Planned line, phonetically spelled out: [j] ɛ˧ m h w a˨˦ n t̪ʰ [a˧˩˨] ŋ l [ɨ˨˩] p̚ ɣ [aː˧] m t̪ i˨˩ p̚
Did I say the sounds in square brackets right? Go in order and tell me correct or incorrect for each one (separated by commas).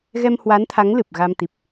incorrect, incorrect, correct, incorrect